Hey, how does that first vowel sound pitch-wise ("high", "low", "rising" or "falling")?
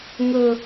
low